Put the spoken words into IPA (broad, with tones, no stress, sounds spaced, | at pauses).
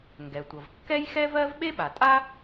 ŋ ɡ ɛ˩ tʷ ʌ˩ v kː ɛ˥ j x ɛ˥ v ɜ˥ v ɓ e˥ ɓ a˩ tʼ a˥